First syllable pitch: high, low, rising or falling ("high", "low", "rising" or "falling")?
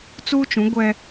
high